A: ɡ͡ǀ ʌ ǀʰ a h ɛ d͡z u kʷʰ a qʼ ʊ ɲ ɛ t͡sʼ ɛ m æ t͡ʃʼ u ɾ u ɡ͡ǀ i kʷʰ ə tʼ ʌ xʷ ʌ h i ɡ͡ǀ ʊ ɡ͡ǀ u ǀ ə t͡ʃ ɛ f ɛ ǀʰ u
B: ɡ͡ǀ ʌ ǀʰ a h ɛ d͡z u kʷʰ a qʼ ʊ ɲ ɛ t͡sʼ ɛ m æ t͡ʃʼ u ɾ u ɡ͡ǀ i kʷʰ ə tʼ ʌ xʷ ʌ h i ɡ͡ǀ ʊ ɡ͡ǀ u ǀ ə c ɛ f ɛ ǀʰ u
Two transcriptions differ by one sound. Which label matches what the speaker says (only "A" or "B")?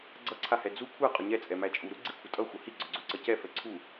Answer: B